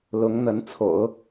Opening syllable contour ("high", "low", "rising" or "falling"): rising